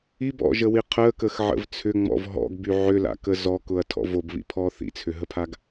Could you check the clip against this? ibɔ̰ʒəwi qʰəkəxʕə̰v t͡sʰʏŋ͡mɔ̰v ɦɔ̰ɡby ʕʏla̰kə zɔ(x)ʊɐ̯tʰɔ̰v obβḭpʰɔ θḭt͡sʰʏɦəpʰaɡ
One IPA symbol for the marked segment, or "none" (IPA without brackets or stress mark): k